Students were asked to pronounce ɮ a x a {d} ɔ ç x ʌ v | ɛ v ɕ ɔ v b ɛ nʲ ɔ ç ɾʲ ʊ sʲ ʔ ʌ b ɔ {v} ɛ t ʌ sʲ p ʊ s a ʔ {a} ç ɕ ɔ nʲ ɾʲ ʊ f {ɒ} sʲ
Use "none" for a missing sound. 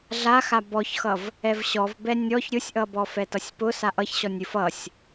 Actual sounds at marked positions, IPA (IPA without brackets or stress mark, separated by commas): b, f, ʌ, ʌ